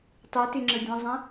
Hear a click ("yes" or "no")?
yes